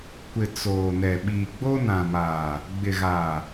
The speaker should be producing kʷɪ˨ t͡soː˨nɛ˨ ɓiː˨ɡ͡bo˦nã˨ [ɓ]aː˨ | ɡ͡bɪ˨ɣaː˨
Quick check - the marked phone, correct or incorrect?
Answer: incorrect